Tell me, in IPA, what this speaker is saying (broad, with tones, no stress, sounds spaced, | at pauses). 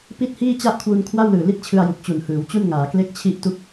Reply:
p i˦˥ t̚ h iː˥˩ t͡ɕ a˥˩ ʔ kʰ w u˧ n kʰ w a˥˩ w l ɯː˨˩ l i˦˥ t̚ t͡ɕʰ ɯ˧ a̯ j u˨˩ k̚ t͡ɕ u˨˩ n h ɯː˩˦ w t͡ɕ u˥˩ n ŋ aː˩˦ k l e˥˩ k̚ t͡ɕʰ i˥˩ ʔ t u˥˩ k̚